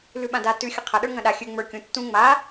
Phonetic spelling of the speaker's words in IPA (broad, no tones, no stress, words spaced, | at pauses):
lʉɓãda tʉ xʲəqʰɐ ɗə˞ŋɐ̃ɗa xʲʉ ŋ͡mə˞ kʲũ tːũ ŋ͡ma